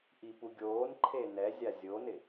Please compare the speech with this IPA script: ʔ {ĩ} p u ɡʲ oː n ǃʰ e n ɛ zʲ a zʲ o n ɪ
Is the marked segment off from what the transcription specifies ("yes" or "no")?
yes